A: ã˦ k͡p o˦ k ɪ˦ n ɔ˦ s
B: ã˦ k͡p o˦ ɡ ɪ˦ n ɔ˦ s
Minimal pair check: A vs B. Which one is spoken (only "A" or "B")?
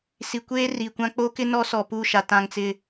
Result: A